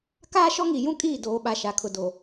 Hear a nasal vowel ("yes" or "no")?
yes